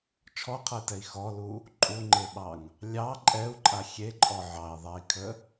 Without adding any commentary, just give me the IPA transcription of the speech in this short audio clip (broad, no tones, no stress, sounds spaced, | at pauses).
t͡ʃʰ ɔ qʰ ə i̯ t ɛ i̯ x ɔ l u | ǃʼ u ŋ͡ǃ e ɓ ɑ ŋ | lʲ ɑ ǃʼ ɛ u̯ ǃʼ a xʲ e ǃʼ ɔ ʕ ɑ i̯ ðˤ ɛ i̯ kʰ ə